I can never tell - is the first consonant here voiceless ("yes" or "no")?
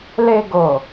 no